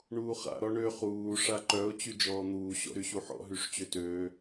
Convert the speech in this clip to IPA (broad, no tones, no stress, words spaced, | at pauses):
ɳuːχa̰ ɾɔɳø χuː ʂaǃœʊ̯ t͡ɕyd͡ʒɔːn̪uː ɕɔ̰ɾyɕuħɔ̰ ɦyʂt͡ɕøtøː